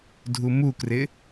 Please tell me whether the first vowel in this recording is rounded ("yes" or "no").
yes